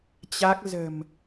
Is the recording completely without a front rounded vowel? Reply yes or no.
yes